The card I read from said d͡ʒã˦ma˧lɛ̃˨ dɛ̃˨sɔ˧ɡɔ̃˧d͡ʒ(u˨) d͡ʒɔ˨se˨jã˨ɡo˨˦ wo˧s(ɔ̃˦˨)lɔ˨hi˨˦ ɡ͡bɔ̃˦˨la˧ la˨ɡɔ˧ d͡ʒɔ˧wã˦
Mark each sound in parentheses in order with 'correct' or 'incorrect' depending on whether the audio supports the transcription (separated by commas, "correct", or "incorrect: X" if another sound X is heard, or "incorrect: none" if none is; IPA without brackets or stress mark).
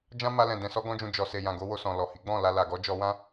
incorrect: ũ˨, incorrect: ɔ̃˨